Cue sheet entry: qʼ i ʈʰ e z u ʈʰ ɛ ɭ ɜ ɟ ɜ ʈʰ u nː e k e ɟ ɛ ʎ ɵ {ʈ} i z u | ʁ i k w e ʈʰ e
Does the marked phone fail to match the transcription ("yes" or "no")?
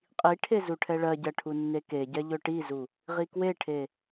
no